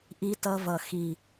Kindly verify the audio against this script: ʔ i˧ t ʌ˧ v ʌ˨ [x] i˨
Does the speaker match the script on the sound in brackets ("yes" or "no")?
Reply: yes